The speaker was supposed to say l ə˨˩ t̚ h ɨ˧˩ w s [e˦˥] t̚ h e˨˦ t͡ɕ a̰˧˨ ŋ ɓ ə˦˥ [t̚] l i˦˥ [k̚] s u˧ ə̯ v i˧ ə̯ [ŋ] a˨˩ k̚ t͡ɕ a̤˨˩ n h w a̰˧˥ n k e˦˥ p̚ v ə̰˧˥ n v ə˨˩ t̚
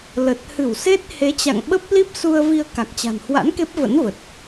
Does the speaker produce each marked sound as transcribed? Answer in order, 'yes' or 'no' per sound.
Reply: yes, no, no, no

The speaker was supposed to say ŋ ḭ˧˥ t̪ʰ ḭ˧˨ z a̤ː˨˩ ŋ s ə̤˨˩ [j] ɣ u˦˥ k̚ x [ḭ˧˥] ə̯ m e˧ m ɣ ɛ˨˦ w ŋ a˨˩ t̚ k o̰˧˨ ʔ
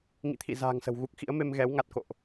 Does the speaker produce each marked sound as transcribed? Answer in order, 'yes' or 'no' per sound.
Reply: no, yes

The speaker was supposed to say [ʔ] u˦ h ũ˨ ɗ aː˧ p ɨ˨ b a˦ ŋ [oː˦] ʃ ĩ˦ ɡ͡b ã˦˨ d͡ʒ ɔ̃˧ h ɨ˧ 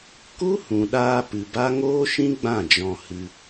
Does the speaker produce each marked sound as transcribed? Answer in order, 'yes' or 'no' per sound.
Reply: no, yes

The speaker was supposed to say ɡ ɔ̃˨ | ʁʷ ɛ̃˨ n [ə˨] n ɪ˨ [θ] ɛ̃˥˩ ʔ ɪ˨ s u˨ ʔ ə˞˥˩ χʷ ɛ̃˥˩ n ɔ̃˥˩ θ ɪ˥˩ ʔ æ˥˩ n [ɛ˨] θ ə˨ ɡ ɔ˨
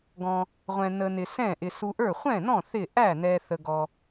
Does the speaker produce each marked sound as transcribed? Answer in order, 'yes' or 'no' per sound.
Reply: yes, no, yes

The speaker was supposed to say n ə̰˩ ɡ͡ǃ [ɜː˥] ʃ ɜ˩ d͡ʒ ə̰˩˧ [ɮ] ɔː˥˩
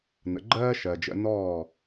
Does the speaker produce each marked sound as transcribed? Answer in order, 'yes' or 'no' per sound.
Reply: yes, no

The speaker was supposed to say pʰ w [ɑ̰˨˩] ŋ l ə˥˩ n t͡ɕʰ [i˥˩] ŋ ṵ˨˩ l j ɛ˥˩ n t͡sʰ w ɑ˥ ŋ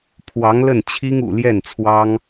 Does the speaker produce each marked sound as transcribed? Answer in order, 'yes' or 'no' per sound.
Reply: no, no

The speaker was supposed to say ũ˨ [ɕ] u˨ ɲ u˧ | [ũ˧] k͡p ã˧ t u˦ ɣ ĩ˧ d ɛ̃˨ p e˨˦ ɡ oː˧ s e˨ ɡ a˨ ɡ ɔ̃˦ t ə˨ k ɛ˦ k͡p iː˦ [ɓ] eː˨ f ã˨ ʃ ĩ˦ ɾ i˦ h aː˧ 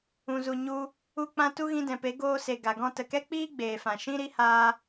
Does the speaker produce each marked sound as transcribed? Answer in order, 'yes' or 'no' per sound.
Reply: no, no, no

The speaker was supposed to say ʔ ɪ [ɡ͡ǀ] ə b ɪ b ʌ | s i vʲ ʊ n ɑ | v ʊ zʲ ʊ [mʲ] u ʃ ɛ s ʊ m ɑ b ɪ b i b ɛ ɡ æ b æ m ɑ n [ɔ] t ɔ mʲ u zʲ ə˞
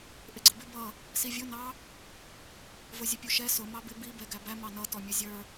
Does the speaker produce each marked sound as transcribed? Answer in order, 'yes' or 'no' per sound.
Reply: yes, no, no

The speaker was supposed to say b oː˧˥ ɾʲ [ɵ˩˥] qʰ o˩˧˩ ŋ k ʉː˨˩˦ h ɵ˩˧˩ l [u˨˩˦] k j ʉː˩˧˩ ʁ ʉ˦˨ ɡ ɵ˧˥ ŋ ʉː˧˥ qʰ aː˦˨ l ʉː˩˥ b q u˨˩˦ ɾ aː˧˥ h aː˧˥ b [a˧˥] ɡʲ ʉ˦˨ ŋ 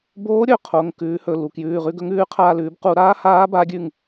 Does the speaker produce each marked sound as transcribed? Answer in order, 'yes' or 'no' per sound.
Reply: no, no, yes

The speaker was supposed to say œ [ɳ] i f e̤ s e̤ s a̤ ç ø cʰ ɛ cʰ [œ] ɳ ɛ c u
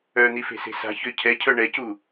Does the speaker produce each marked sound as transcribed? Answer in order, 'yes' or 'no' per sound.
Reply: no, yes

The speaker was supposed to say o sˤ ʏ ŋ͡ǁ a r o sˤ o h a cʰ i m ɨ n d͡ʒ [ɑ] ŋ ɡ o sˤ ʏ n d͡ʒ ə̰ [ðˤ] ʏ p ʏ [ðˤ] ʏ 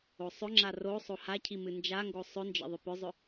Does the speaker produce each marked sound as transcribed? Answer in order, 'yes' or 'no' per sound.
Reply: no, yes, no

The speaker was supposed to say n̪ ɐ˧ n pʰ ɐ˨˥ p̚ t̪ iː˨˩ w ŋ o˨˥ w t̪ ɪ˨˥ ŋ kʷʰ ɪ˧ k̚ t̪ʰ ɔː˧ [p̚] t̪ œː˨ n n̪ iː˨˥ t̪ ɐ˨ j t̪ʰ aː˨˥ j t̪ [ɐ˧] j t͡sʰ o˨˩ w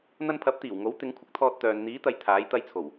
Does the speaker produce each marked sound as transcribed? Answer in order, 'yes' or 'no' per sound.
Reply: no, yes

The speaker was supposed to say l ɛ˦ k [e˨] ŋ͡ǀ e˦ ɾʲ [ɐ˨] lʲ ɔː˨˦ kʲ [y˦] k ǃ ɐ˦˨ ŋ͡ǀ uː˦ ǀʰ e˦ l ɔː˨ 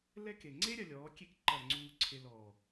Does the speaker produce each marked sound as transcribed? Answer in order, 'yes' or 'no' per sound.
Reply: yes, yes, no

